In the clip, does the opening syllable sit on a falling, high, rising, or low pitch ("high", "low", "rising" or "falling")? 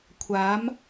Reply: rising